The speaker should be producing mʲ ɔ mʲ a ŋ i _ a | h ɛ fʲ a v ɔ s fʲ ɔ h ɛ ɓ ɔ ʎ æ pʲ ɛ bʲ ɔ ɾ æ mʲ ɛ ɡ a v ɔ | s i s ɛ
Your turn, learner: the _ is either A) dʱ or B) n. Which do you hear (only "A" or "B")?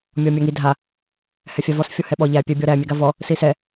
A